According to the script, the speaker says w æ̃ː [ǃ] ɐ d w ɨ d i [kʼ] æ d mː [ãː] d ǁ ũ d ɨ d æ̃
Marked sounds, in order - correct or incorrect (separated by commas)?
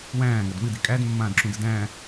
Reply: incorrect, correct, correct